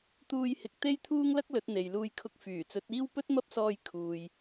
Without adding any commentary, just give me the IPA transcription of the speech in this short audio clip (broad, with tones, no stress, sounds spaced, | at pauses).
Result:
t̪ uː˧ j h ɪ˨˥ k̚ t̪ e˥ j t̪ʰ uː˥ ŋ l ɐ˥ k̚ l ɵ˨˥ t̚ n̪ e˨ j l uː˧ j kʰ ʊ˧ k̚ f yː˨˩ t͡s ɵ˨˥ t̚ iː˥ w p ɵ˥ t̚ m ɐ˥ p̚ s ɔː˧ j kʰ uː˨ j